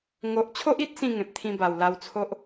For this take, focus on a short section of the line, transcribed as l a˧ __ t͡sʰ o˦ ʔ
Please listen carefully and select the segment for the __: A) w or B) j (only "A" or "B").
A